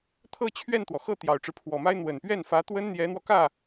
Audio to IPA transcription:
t̪ʰ ɤ˥˧ t͡ɕʰ ɥ ɛ˥˩ n t̪ w ɔ˩ x ɤ˥˩ t̪ j ɑ˨˩ ʊ̯ ʈ͡ʂ ɻ̩˦ pʰ w ɔ˨˩ m a˥ ɪ̯ n̪ w ə˨˩ n p ɥ ɛ˥˩ n f ä˧˥ t̪ w ə˥ n n̪ j ɛ˧˥ n̪ w ɔ˧ k ä˥˩

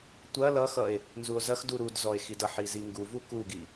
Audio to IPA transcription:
tʷ ɐ l ʌ x ʌ e̯ | n z u o̯ z ɐ x d u ɾ u d z ɔ e̯ x i d ʌ ħ i z i ŋ ɡ u v u k u ɡ i

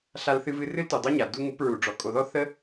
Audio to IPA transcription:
ɬ a˧ l θ ɨ˧ v ɨ˧ r ɨ˦ l t u˨ dˤ o˦ ɲ a˨ d u˧ ŋ u˨˦ p ɹ u˨ ɖ͡ʐ ɔ˨ kʼ o˨ ð ɔ˦ θ ə˦

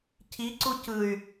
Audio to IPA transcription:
cʰ i ǀ u c ɯ y̯

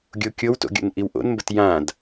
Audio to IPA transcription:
ɡʲ o kʲ o w t o̰ ɡʲ o̰ n ʔ i w ʔ o̰ n m b ə t j ã d

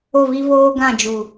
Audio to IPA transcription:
o˦˨ v i˦ v oː˦ ɡ ã˦˨ d͡ʒ u˨

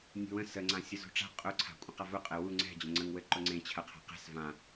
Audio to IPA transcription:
nʲ ṳ w ə̃ s ə ŋ͡ǀ ã sʲ ʊ z ṳ ʈ͡ʂ a̤ qʼ ʊ ǀʰ a̤ kʷʼ ə̃ q a v ʊ qʼ ɘ w u ŋ͡ǀ ɛ̤ d͡ʑ ə̃ ŋ͡ǀ ə̃ ŋ w ɘ ǃ ʊ ŋ͡ǀ ẽ t͡ɕʰ ɐ qʰ a̤ q ɛ̤ s v ã

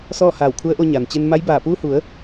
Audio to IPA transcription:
s ɔː˥˨ h aː˧˩ w kʰ u˧˥ ə̯ ʔ o˧ ɲ a˩ n t͡ɕ e˧ n m a˧˥ j b aː˧˩ p uː˧ h u˩˧ ə̯

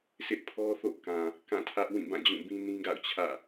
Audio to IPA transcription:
s ɪ˦ ʔ pʰ ɔ˦ θ o̰˦˨ k ã˨ | k ã˦˨ tʰ ä˦ ʔ w ĩ˦˨ b ã˦˨ d͡ʑ ũ˦˨ b ĩ˦ n ĩ˦ ɡ a̰˦˨ ʊ̯ t͡ɕʰ ä̰˦˨

